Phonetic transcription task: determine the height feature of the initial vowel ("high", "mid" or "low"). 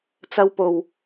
low